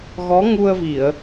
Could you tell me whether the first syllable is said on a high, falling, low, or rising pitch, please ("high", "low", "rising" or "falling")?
rising